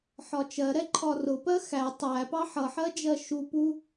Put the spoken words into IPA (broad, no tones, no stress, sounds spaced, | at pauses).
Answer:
ħ ɒ t͡ʃ ɜ ɾ ɛ ǃʰ ɒ r ʊ p ɜ x æ tˤ æ p ɑ ħ ʌ ħ ɜ d͡ʒ ɜ ʃ u p u